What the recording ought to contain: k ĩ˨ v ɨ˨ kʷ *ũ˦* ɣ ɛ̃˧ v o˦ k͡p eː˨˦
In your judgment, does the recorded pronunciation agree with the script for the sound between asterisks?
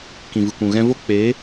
no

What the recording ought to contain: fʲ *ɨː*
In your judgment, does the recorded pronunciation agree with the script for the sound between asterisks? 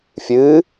yes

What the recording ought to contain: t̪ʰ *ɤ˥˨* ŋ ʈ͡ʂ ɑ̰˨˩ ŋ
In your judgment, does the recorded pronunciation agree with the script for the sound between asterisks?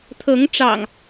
no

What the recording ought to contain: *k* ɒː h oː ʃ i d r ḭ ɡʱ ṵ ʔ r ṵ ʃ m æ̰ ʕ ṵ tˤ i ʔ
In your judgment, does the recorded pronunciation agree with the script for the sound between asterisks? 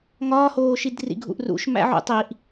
no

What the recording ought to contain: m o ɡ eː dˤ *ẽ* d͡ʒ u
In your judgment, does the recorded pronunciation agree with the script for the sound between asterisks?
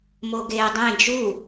yes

